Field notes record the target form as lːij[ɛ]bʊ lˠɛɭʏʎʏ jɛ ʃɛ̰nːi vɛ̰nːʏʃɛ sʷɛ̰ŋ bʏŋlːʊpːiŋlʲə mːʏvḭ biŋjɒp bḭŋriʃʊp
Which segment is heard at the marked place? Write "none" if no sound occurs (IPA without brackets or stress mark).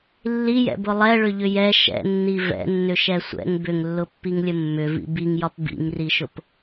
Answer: ɛ̰